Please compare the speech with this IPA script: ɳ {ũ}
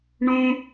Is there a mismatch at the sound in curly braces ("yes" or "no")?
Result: no